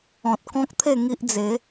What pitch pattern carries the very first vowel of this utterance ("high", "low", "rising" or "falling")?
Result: low